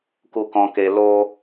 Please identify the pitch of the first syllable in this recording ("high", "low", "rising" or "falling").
low